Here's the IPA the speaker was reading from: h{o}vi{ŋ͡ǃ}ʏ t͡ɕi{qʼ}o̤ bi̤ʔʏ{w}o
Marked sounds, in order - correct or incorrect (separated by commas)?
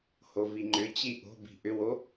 correct, correct, incorrect, correct